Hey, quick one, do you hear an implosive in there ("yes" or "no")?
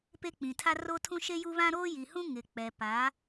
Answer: no